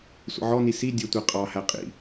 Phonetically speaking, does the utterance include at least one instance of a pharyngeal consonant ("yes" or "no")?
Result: yes